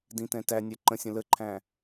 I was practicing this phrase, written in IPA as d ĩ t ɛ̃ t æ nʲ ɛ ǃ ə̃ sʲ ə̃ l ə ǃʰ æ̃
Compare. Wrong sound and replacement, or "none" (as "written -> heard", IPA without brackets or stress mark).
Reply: none